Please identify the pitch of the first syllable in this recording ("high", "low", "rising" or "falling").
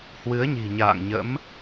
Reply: rising